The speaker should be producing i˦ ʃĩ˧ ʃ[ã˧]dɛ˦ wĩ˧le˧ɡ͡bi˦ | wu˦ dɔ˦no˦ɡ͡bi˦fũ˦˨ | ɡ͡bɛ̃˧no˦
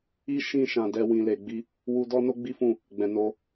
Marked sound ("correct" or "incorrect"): correct